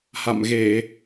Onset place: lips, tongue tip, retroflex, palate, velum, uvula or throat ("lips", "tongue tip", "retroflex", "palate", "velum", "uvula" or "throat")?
throat